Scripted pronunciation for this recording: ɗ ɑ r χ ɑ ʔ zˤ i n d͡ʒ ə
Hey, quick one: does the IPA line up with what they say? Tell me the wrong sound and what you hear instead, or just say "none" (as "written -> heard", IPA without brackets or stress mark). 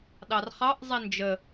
none